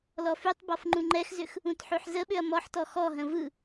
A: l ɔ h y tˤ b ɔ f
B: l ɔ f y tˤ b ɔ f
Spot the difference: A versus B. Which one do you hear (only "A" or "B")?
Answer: B